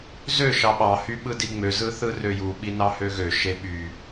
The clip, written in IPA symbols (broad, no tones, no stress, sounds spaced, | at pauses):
z ø ʃ ɑ ɓ ɑ h y ɓ ɯ d i ŋ͡m ø z ɯ θ ɯ r ø j u ɓ i n ɑ h ø ɣ ø ʃ e ɓ y